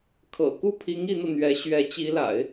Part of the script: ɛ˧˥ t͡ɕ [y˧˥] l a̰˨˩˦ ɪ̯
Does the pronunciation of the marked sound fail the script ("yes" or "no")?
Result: yes